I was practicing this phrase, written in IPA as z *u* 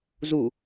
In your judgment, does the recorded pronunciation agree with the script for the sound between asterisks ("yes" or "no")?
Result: yes